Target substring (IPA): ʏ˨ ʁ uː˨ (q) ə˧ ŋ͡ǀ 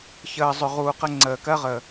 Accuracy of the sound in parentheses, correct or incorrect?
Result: correct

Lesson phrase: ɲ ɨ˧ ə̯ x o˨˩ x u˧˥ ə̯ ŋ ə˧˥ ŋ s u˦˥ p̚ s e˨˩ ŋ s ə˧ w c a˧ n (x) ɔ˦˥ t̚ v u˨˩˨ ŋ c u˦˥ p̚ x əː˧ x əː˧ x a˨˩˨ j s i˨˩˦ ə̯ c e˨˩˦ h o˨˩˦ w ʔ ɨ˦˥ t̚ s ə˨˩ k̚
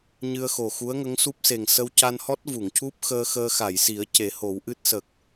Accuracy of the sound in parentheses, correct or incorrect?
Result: incorrect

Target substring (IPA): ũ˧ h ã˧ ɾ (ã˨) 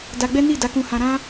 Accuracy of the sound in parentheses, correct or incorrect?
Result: incorrect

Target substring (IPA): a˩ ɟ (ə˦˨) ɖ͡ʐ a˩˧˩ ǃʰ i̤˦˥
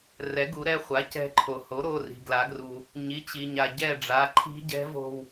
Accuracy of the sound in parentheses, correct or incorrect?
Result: incorrect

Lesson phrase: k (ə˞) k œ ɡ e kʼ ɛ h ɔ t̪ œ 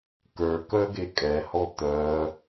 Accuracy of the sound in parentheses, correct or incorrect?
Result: correct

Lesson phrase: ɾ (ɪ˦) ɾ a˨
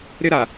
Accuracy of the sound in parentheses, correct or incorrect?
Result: correct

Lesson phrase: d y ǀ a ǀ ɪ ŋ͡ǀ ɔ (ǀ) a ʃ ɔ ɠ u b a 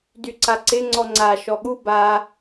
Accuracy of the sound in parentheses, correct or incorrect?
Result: incorrect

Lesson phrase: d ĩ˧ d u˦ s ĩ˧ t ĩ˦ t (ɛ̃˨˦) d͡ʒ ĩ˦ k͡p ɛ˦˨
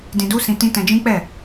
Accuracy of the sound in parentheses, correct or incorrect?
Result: incorrect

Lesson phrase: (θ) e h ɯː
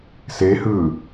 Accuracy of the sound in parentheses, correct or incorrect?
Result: incorrect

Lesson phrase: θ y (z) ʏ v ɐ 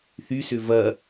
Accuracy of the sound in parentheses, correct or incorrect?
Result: incorrect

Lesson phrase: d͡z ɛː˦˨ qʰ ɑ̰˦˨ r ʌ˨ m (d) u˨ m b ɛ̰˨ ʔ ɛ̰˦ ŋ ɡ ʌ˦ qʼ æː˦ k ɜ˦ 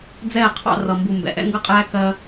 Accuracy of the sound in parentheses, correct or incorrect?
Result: incorrect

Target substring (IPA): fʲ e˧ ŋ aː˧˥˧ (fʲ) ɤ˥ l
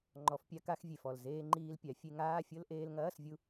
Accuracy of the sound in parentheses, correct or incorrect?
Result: correct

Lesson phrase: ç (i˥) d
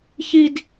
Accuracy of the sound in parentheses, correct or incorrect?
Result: correct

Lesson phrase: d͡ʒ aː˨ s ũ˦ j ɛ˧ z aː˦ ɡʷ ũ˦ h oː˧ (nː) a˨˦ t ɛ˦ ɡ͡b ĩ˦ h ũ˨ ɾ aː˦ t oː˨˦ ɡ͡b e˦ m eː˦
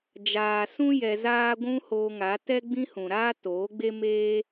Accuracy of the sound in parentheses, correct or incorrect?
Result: incorrect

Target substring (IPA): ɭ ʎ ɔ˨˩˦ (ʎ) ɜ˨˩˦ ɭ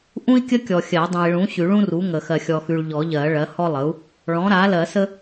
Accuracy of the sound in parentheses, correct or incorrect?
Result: correct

